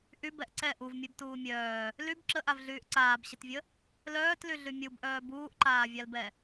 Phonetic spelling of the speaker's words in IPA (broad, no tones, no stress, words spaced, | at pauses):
ʔybɛʔ ǀɛ ʔuvmʲɛbtuː mʲœː | lyb ǁəʔavɮyːʔ ǀaːbɕətvʲə | lœːtlyɮy mʲubʔœː buːʔǃaːvʲalbɛ